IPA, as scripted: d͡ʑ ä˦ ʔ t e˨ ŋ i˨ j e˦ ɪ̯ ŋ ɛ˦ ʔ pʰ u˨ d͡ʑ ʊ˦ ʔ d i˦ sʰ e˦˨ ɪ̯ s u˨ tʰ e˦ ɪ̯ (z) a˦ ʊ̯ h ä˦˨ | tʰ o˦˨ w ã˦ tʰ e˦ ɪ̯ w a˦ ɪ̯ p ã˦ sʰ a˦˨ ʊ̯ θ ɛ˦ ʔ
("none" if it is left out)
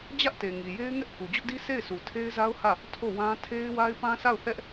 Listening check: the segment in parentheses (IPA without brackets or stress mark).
z